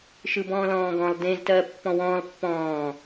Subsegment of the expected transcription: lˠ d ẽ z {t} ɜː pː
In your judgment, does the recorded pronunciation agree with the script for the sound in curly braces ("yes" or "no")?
yes